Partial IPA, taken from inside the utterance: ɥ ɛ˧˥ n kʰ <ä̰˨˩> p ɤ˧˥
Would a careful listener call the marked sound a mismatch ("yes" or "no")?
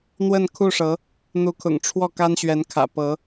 no